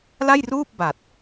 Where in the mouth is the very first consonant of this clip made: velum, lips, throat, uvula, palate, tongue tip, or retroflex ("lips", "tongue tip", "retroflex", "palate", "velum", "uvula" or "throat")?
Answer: tongue tip